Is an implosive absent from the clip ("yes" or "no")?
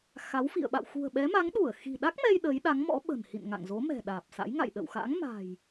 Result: no